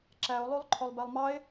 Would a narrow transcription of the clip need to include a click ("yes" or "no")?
yes